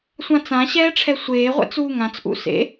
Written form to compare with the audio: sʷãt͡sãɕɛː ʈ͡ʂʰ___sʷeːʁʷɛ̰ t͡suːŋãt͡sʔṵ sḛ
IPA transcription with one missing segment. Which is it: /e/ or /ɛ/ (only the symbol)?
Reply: ɛ